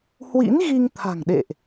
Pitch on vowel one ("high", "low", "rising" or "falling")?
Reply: rising